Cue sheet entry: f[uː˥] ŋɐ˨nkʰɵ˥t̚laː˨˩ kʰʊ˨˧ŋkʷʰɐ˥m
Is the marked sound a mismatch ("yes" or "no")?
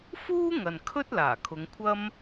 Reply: no